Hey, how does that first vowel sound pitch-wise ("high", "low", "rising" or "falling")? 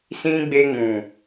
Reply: high